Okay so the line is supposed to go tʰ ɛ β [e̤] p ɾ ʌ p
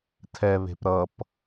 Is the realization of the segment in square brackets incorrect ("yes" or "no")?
no